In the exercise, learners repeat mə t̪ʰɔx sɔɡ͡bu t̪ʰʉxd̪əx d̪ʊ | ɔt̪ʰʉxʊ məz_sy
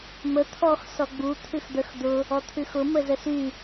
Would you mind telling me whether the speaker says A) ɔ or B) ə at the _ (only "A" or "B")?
B